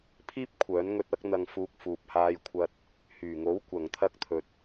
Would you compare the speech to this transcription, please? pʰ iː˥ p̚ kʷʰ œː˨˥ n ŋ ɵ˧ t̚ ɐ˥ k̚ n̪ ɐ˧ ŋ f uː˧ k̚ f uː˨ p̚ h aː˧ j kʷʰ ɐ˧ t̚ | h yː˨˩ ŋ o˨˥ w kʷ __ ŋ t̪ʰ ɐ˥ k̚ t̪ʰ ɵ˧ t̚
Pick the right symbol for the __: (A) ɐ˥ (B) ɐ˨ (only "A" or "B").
B